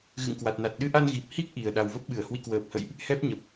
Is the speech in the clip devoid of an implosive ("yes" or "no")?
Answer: no